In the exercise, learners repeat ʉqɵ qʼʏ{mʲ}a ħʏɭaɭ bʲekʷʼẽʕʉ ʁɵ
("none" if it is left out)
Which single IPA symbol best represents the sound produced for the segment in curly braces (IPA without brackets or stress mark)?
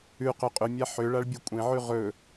mʲ